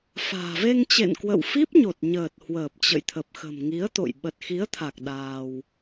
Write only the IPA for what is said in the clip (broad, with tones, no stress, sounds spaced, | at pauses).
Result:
f a̤ː˨˩ v e˧ ŋ t͡ɕ ḛ˧˨ n k w ə̰˧˨ w f i˦˥ p̚ ɲ o˨˩ t̚ ɲ əː˨˩ t̚ h w əː˨˩ p̚ t͡ɕ ə̰˧˨ j t̪ʰ ə˨˩ p̚ x ə̤˨˩ m ŋ i˨˦ ə̯ t̪ o̰˧˨ j ɓ ə˨˩ t̚ x i˨˦ ə̯ t̪ʰ a˨˩ k̚ ɗ aː˧ w